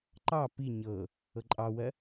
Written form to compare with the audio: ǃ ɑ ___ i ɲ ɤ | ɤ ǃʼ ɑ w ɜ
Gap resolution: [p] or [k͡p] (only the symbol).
p